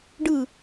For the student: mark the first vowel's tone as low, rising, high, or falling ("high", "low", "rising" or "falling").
falling